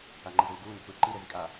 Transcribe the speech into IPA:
a ŋ͡ǃ ɯ z uː ɡ uː n ɛ̤ p ɯː ǃ i ɾ e z i kʼ a

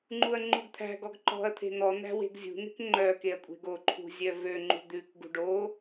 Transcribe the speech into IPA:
ŋ͡ǃ u ɐ̯ ŋ͡ǃ u ɡ t̪ʰ æ̤ ɡ ɔ ɡ ǃ ɔ̤ ɐ̯ t̪ʰ e̤ n̪ ɔ n̪ æ̤ w e̤ ɡ zʲ ṳ n̪ e̤ k ŋ͡ǃ œ k e ɐ̯ kʷʼ e̤ ɡ o ǃʰ ṳ zʲ œ v ø ŋ͡ǃ ṳ d̪ ʉ k ɡ ṳ ɖ o

